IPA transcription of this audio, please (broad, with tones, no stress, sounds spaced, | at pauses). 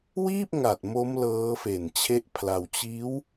w iː˥˩ p̚ ŋ a˨˩ t̚ m o˦˥ m l ɤː˦˥ f e˨˩ n t͡ɕʰ e˦˥ ʔ pʰ l a˧ w t͡ɕ iː˦˥ w